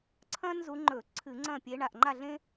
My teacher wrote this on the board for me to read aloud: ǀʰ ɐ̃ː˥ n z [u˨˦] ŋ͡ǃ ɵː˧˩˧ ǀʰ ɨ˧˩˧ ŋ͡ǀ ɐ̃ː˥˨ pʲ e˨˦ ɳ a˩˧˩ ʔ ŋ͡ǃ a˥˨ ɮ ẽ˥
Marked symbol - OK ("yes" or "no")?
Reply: yes